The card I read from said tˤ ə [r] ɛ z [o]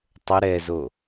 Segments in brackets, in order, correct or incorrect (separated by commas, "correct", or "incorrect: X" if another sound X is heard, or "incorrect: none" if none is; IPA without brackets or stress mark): incorrect: ɾ, correct